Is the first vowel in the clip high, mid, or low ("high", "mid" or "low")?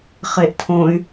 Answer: mid